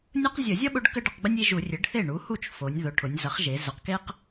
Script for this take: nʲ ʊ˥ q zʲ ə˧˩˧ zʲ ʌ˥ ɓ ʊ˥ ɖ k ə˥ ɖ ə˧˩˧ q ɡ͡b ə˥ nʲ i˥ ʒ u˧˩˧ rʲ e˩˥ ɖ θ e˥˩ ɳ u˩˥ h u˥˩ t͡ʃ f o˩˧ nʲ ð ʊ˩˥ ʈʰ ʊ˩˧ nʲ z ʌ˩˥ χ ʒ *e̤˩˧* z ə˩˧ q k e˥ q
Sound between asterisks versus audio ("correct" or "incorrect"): incorrect